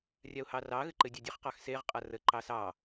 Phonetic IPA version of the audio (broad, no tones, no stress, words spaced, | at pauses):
rʲaʊ̯hɑrɑɣɘ ǃɘdʲɑdʲɘχqɑx seʁqʼa rəǃɑ sɑ